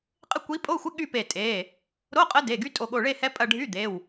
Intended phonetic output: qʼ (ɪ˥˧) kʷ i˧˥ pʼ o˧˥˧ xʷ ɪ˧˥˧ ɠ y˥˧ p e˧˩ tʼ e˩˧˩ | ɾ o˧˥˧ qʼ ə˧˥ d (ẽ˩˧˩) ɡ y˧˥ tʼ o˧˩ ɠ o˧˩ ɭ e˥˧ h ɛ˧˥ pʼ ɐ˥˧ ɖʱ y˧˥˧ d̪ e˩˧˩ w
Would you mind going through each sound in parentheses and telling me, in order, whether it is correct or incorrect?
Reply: correct, incorrect: e˩˧˩

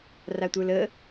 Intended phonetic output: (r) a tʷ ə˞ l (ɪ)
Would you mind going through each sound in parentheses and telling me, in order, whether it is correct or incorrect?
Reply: correct, incorrect: ə

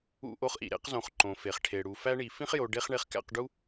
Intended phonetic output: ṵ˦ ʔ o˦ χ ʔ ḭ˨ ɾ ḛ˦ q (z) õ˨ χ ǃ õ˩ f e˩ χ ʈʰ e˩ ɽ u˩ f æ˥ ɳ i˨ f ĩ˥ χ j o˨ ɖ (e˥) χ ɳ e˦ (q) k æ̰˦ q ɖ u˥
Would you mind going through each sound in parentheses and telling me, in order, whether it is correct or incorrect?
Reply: correct, correct, incorrect: χ

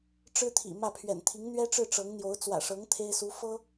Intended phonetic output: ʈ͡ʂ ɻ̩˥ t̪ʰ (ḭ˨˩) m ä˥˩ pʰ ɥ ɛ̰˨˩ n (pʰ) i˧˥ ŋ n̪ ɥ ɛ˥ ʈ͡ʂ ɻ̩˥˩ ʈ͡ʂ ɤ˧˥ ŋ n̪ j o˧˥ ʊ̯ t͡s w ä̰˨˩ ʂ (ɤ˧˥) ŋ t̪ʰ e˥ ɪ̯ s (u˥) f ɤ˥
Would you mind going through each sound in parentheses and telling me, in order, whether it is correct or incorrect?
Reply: correct, incorrect: t̪ʰ, correct, incorrect: u˧˥

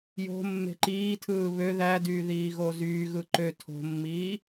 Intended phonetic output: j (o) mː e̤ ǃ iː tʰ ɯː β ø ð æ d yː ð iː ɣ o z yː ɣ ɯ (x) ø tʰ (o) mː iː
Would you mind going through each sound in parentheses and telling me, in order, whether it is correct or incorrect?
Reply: incorrect: o̤, incorrect: ǃ, incorrect: o̤

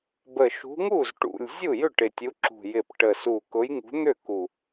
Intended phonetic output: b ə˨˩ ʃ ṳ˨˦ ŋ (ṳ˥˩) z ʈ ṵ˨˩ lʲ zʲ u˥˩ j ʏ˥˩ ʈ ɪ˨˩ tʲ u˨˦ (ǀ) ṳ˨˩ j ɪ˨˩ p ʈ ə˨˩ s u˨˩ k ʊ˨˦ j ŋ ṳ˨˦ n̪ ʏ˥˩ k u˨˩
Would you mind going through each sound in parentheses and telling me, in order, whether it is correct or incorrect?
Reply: incorrect: u˥˩, incorrect: ǁ

